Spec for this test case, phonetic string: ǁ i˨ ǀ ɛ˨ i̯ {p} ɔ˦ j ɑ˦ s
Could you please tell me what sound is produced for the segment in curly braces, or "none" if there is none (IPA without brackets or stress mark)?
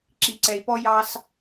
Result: p